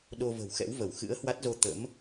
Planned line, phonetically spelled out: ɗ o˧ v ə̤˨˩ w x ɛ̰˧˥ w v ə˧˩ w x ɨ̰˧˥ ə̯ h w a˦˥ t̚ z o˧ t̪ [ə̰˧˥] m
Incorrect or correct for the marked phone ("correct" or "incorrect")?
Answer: correct